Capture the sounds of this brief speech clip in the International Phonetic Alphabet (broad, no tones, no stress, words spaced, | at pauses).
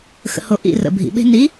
xə̰ho ʔḭ rə̰ bʱḭɓe̤ ni